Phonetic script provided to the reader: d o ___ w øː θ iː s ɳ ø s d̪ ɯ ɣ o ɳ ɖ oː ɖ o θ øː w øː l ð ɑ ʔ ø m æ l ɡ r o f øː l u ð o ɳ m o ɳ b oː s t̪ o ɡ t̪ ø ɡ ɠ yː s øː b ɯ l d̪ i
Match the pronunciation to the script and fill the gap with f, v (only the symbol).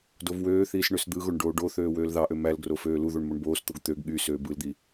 v